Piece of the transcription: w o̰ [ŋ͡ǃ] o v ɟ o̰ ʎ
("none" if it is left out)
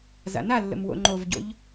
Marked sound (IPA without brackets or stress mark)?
ŋ͡ǃ